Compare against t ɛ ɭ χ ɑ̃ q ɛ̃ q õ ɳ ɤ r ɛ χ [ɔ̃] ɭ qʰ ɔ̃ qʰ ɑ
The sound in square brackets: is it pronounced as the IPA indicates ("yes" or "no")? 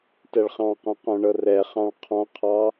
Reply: no